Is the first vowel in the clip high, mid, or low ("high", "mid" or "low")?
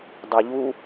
mid